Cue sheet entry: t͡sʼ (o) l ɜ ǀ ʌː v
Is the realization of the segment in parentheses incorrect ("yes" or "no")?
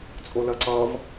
no